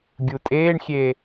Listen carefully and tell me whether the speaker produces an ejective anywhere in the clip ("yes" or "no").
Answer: yes